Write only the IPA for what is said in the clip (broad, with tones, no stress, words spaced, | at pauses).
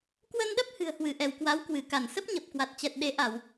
kwə˧nɗə˦˥p̚ hɨ̤˨˩ə̯hwɨ˧˩ʔɛ˧˩w kwa˨˦wkwɨ˧˩ka˧˩n sə˦˥p̚ɲə˨˩p̚kwa˨˩t̚t͡ɕɛ˨˩t̚ ɗe˨˦ ʔa˧˩˨w